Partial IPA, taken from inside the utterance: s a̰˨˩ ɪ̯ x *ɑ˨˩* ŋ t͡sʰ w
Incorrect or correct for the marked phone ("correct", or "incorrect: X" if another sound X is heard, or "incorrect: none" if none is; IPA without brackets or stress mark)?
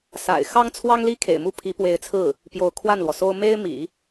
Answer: incorrect: ɑ˥